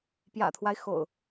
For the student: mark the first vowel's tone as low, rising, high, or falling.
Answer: low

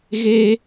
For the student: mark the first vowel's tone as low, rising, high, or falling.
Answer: high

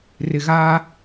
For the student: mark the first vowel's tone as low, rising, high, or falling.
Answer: low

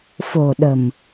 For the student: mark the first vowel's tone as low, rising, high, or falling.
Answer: low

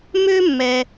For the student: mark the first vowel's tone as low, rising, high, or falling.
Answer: high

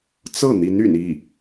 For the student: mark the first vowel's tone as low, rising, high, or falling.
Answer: falling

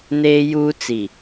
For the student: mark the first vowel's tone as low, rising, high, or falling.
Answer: high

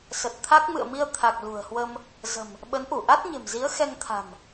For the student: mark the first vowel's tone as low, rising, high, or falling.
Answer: low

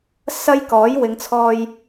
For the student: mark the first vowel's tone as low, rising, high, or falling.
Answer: high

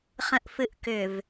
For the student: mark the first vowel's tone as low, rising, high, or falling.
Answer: low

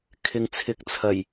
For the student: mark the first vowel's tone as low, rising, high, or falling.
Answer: low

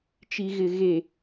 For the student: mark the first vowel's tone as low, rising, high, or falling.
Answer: low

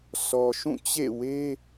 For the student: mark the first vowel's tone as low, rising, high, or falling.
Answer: low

